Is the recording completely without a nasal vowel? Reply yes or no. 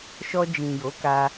no